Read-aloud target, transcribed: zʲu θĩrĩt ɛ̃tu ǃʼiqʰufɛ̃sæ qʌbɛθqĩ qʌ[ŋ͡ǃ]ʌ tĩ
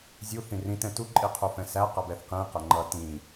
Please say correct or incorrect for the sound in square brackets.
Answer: correct